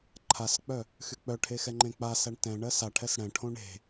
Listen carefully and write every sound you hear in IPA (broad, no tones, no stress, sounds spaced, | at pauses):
ǃʰ a s k͡p œ | x y k͡p œ ʈʰ e x ɛ ŋ͡ǃ ẽ k͡p a s æ ɳ t ɛ̃ ɳ ɜ s a ʈʰ ɛ s ɽ ɛ̃ ʈʰ õ ɳ e̤